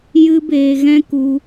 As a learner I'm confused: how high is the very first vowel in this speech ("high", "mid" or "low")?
high